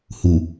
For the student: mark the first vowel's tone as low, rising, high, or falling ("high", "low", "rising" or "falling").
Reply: low